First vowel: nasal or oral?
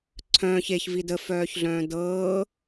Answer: nasal